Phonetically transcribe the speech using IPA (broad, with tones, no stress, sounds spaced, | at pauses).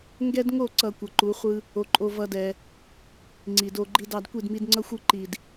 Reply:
ŋ ɡ ɛ˦ d ŋ o˦˨ ǀ ʌ˨ kʷ ʌ˨ ǃ u˨˦ χʷ ɯ˦ | o˧ ǃʼ o˧ v ʌ˦ d ɛ˧ | ŋ͡ǀ i˨ d o˧ ɡ͡ǃ i˦ d ɑ˦ d kʷ i˦˨ d m i˧ d ŋ͡ǀ ʌ˦ xʷ ɯ˦ ǃ i˨ d